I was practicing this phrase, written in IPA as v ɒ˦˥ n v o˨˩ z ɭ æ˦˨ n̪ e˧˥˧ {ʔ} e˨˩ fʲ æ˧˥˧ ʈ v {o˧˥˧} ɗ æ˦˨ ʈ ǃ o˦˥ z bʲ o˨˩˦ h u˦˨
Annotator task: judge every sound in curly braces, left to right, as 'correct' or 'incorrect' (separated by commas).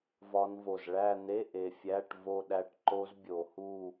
correct, incorrect